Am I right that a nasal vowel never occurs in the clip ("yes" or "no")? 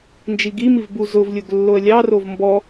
yes